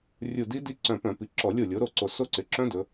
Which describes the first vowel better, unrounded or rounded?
rounded